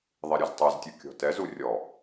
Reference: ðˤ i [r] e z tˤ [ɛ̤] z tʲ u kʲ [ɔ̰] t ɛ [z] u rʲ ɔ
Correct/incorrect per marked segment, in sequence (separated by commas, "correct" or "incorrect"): incorrect, incorrect, incorrect, correct